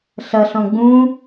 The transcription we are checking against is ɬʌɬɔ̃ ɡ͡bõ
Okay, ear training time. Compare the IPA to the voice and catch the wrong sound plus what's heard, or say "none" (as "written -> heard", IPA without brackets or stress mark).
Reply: õ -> ũ